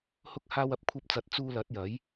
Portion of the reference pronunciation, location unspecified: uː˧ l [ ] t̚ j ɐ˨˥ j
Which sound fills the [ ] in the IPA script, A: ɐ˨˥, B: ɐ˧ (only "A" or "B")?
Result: A